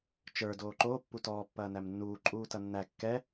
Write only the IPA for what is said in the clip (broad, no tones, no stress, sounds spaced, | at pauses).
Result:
t͡ʃ ə˞ d oː ǃ oː pː u t ɔː pː ɐː n æ m nː uː ǃʼ uː t ɐ nː æ kː ɛ